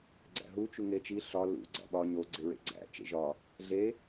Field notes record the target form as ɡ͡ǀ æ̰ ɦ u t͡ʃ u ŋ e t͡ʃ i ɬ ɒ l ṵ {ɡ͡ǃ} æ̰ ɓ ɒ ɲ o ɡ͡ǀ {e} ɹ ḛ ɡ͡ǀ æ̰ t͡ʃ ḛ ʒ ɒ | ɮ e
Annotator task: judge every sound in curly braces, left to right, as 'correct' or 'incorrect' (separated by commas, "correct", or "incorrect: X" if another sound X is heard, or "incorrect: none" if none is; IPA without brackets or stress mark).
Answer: incorrect: ɡ͡ǀ, correct